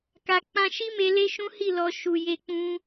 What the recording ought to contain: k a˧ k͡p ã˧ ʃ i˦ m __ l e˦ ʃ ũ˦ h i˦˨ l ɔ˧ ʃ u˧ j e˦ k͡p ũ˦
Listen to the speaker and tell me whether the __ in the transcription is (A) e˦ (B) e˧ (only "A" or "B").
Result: B